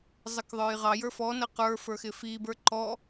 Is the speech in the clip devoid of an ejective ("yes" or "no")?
yes